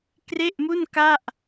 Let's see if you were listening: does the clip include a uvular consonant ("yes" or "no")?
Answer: no